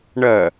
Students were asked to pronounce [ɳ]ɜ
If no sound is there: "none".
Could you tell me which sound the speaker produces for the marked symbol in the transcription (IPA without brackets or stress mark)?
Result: ɳ